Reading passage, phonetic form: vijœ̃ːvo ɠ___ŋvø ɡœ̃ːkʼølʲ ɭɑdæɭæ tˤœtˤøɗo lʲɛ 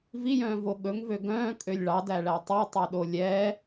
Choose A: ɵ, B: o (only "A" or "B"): A